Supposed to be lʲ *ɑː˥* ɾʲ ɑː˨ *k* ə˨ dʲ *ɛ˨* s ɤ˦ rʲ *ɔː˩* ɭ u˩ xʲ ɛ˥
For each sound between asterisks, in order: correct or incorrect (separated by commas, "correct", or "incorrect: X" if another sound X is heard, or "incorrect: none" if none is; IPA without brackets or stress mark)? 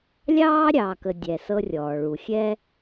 correct, correct, correct, correct